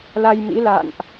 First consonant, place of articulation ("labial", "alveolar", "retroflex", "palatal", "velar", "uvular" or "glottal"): alveolar